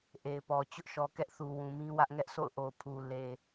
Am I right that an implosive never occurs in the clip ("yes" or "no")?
yes